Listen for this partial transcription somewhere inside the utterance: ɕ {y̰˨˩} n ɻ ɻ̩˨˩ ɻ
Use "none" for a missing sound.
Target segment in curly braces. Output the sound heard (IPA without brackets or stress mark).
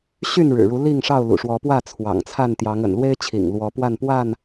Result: y˥˨